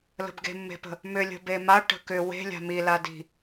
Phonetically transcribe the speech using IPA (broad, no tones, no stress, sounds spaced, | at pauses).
l ə̤ b ɡ e̤ mː e̤ p ə̤ | m ʏ lʲ ə̤ b e m a ʈ ə̤ k ʏ w e̤ lʲ a̤ m i l a d i̤